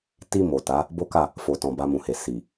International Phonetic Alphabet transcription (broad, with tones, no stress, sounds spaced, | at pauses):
t i˨ m o˨ t a˨˦ | b o˦ k a˦˨ | f o˨ t ɔ̃˨ b a˧ m ũ˨ h e˨ s i˨